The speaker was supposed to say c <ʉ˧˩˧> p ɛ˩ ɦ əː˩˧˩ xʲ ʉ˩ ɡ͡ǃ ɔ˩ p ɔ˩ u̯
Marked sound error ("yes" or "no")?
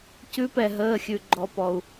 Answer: yes